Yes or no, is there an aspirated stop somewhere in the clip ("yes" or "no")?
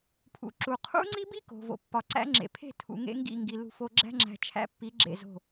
yes